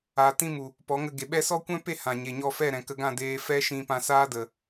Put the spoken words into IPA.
a˨ t ĩ˧ m u˨ | p ɔ˨˦ ŋ ə˧ ɡ e˨ ɓ ɛ˦ s ɔ˦ kʷ ɛ̃˦ p e˦˨ h ã˨ ɲ e˨ ɲ ɔ˧ f ɛ˦˨ ɾ ɛ̃˨ k ə˧ ɡ ã˦˨ d eː˦ f ɛ˦ ʃ ĩ˧ p ã˧ s aː˦ d ə˨

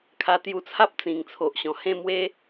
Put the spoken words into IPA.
kʰ a˧ t̪ j u˧ t͡sʰ a˦ p̚ t͡s ĩ˨˩ ŋ t͡sʰ o˨ ʔ ɕ ɔ̃˨˩ h ẽ˥˧ m w e˦

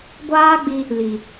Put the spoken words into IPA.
ɡʷ aː˦ ɡ͡b i˧ | l i˨

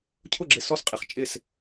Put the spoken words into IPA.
cʰ ʊ˥˨ ɡ͡ǁ ɪ˧ s ɔ˥˨ s qʼ ɪ˧ χ t͡ʃʼ ɪ˥˨ s

